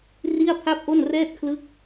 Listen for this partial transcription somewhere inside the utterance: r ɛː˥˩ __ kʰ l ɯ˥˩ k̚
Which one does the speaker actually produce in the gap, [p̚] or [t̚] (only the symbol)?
t̚